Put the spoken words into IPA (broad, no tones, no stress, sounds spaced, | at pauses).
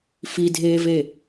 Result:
f i dʱ eː v e